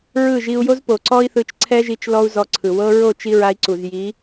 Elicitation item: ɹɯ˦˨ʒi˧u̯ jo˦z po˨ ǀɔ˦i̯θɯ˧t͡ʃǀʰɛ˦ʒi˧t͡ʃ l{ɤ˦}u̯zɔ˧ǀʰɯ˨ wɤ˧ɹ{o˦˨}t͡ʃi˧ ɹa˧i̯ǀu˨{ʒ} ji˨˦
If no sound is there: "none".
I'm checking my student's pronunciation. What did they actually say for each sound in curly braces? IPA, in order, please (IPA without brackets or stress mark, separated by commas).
ɔ˦, o˦˨, z